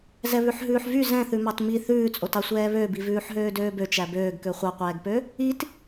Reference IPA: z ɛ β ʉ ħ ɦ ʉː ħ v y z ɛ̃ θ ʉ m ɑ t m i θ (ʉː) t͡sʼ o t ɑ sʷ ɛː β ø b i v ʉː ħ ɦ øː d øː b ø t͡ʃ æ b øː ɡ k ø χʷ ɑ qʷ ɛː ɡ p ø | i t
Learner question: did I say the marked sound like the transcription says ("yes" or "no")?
yes